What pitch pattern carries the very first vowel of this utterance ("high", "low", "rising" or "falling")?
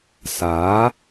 rising